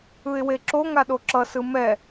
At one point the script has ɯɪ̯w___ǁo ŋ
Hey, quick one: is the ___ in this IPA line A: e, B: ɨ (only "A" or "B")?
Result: A